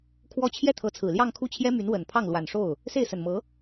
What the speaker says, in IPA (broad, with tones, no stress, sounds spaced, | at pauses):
kʰ w ɔ˥˧ t͡ɕʰ j ɛ˥˩ t̪ʰ ɤ˧˥ t͡sʰ ɹ̩˨˩ l j ɑ˥˧ ŋ kʰ u˥˩ t͡ɕʰ j ɛ˥ m y˧˥ n w ə˨˩ n pʰ ɑ˥˩ ŋ l w a˨˩ n ʂ o˥˩ ʊ̯ | s e˥˩ ɪ̯ s ə˨˩ n m ɤ˧˥